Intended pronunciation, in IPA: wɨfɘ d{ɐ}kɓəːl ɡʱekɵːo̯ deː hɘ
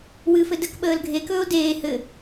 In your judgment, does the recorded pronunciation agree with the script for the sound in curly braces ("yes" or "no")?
no